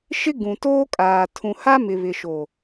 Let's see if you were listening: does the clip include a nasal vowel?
yes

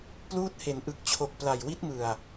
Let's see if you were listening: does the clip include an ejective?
no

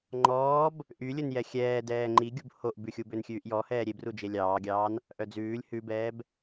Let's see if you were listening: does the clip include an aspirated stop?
no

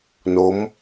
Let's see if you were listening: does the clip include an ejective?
no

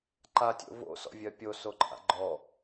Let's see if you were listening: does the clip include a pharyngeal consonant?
no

